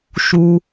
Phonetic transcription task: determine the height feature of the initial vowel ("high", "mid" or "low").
high